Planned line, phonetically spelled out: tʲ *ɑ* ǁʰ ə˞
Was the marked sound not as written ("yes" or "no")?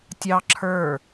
no